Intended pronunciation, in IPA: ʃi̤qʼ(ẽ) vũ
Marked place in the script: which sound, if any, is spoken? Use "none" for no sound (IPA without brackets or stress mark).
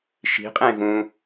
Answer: ẽ